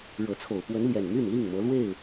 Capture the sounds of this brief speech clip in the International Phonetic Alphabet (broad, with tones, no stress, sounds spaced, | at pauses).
ɻ ɤ˨˦ t͡sʰ o˨˩ ʊ̯ p w ə˨˦ n l j ɛ˨˩ n m y˥˨ n l i˥˨ ŋ m ɤ˨˦ l w e˥˨ ɪ̯